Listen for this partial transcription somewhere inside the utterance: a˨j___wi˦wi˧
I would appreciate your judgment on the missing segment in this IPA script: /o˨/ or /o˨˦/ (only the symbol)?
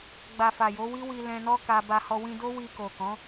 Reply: o˨˦